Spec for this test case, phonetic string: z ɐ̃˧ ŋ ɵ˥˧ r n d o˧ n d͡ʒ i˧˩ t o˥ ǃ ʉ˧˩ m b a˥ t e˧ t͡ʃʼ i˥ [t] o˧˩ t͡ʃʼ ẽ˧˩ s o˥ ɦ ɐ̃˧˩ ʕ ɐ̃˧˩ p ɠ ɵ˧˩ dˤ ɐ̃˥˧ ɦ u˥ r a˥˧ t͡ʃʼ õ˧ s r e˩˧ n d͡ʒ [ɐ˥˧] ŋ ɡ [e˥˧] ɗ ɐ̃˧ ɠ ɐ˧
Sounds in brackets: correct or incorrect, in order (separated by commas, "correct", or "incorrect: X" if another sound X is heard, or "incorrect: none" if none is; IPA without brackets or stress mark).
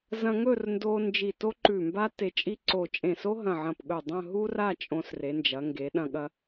incorrect: ǀ, incorrect: ɐ˩˧, incorrect: e˩˧